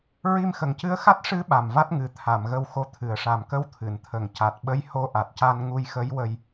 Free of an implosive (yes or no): no